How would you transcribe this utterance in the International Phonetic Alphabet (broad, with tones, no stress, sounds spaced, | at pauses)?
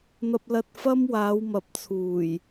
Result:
n̪ ɐ˧ p̚ l ɐ˧ t̚ f ɐ˥ m w aː˨˧ w m ɐ˨˥ p̚ t͡sʰ uː˨˩ j